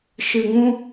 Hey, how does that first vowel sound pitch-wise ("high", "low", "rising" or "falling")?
low